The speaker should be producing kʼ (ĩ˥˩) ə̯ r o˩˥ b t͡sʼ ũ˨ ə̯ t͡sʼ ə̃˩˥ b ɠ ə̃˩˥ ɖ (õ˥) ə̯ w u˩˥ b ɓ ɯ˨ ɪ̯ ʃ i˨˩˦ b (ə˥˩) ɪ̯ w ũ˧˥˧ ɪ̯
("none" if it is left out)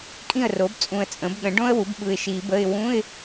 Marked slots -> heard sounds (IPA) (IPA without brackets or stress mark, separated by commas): ĩ˥˩, õ˥, ə˧˥˧